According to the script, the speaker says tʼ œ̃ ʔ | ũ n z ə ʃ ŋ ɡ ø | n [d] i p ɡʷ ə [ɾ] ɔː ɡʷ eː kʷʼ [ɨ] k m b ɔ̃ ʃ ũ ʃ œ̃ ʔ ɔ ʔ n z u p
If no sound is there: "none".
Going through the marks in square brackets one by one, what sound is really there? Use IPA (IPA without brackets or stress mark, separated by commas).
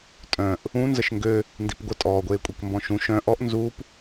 d, tʼ, i